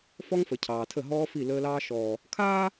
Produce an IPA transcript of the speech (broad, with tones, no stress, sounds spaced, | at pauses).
f ɔ˦ ŋ f ə˨ cʰ ɑː˨ tʰ ə˦˨ ɦ ɔː˦ f i˦˨ l əː˦ l ɑː˦ ʃ ɔː˨ | kʰ aː˦